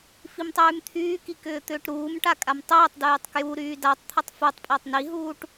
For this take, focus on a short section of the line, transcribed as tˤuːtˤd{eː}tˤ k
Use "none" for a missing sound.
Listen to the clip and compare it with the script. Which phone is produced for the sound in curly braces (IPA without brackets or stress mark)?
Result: yː